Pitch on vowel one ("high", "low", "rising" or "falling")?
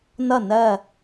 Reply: falling